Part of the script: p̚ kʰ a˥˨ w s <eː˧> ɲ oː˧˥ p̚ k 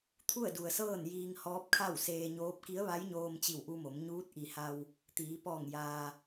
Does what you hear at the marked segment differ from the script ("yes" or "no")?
no